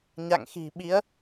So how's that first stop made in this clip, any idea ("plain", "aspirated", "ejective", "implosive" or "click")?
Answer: implosive